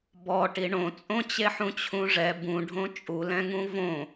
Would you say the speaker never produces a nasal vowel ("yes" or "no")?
no